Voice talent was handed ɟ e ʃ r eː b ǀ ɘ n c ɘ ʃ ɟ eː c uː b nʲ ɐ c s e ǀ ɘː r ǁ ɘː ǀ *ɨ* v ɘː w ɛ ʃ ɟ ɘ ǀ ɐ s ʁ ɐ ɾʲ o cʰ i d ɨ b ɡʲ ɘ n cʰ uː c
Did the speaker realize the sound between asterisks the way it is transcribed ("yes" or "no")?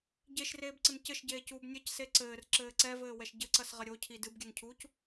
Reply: no